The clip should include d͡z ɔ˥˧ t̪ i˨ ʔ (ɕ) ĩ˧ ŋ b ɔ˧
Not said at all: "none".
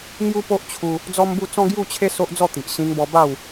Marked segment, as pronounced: ɕ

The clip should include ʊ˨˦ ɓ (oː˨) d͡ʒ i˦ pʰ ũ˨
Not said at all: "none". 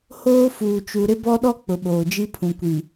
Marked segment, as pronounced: oː˨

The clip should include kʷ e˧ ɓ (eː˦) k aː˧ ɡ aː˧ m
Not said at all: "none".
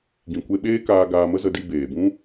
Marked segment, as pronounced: eː˦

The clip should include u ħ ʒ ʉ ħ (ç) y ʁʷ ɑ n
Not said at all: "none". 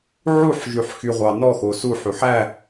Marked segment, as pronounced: x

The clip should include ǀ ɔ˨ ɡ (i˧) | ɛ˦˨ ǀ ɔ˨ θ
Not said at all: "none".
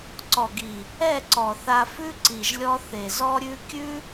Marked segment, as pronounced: i˨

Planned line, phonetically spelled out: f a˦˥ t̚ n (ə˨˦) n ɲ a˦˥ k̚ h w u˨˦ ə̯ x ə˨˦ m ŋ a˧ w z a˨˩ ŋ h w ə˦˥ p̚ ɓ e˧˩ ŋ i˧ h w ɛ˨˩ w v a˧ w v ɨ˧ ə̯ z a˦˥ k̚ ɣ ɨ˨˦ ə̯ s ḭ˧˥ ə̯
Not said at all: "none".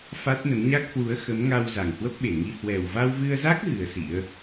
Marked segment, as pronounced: ə˨˦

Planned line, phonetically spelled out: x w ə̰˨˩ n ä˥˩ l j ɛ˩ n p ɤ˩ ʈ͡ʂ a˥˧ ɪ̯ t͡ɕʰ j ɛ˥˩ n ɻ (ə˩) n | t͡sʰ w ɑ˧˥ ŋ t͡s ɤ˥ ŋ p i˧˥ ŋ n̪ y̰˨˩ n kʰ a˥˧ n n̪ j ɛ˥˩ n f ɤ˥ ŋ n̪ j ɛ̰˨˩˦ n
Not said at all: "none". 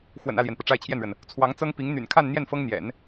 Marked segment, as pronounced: ə˩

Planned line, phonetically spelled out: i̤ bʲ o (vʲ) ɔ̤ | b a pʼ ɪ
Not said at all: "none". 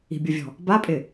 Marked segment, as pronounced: vʲ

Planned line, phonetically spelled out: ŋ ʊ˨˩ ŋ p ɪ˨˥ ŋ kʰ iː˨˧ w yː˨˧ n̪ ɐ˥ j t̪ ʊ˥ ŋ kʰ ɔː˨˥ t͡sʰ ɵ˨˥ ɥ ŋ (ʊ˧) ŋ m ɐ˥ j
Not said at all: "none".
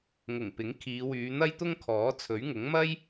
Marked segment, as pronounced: ʊ˨˥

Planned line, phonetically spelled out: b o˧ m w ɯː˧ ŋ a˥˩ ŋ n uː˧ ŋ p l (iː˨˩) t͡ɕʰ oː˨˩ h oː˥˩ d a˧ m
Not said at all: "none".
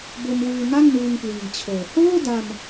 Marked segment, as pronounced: iː˨˩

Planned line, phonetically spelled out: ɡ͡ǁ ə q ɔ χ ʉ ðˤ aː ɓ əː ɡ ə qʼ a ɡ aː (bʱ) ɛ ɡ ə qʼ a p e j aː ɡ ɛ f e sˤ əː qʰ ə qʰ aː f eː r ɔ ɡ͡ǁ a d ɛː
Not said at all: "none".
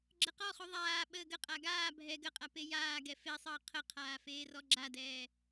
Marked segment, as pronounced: bʱ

